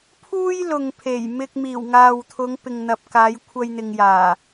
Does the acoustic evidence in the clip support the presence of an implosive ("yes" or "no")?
no